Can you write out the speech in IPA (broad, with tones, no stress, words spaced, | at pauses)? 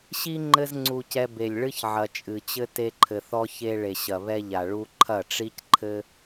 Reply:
ɕi˦ ŋ͡ǃɘ˦zŋ͡ǀu˧cɛ˧ be˨lʲɭɨ˦çʕɐ˨ t͡ʃʼɨ˨t͡ɕɘ˦ te˦ǃʰɘ˧θɔ˦ çe˧ɭe˨ ɕɐ˨βɛ˧ʎa˨ ɭu˧ǃʰɐ˦˨ʈ͡ʂi˦cǃʰɘ˦